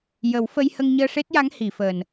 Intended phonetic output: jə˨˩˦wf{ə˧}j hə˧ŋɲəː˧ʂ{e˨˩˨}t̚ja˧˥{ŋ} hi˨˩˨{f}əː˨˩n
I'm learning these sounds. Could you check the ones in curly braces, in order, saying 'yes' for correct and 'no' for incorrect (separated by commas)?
yes, no, yes, yes